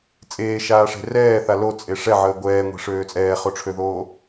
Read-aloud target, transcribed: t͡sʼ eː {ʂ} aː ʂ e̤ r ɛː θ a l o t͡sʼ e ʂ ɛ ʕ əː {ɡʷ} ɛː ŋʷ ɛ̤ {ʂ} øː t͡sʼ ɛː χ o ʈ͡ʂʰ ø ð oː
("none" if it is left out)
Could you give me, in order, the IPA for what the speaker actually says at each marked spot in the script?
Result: ʃ, ɡʷ, ʂ

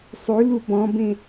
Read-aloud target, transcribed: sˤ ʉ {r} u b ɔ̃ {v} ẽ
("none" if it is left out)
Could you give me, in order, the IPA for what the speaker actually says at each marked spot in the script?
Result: l, b

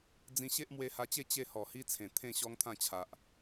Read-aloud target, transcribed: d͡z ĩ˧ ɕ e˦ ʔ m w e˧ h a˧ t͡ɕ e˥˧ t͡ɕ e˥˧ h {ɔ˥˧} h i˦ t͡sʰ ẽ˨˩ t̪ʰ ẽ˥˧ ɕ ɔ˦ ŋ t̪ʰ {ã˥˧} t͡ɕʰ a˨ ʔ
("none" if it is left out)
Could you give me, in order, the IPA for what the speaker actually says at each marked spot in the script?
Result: ɔ˨˩, ã˥˧

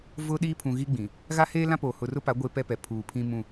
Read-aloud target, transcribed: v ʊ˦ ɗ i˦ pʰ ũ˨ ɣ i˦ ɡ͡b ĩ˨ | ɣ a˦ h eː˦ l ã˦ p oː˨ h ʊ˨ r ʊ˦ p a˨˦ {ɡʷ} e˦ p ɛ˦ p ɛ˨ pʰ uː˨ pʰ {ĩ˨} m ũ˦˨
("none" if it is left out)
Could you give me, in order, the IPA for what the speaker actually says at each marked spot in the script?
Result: ɡʷ, ĩ˦

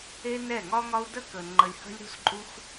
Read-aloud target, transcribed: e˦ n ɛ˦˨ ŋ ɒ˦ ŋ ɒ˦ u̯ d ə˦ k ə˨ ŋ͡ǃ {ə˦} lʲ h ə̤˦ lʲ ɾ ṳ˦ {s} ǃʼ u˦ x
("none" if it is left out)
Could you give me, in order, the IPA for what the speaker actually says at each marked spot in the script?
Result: ə˧, s

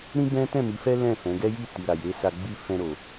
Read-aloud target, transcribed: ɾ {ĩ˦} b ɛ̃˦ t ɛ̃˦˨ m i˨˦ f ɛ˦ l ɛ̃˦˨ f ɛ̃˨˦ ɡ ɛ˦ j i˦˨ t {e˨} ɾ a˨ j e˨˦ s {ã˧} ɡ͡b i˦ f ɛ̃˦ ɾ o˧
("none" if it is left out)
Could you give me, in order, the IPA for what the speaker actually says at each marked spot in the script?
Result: ĩ˦, i˨, a˧

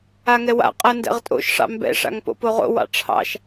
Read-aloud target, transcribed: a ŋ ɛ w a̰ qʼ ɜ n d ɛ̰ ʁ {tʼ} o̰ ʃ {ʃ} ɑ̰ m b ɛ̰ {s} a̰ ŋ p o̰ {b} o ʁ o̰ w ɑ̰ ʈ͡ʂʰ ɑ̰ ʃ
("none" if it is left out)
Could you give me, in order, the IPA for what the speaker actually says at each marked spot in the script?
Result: tʼ, ʂ, ʂ, p

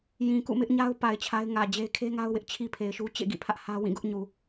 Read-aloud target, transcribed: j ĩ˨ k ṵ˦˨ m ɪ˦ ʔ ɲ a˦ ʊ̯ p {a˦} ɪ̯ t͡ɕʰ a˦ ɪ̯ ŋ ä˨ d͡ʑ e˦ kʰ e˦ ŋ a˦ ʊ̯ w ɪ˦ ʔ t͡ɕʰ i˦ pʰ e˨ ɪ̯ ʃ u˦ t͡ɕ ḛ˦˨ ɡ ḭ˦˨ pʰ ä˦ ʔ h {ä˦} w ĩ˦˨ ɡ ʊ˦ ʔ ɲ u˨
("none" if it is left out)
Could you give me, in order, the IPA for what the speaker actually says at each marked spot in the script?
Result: a˨, ä˦

